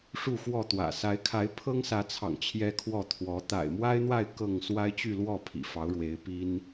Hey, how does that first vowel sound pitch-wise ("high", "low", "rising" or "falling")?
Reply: falling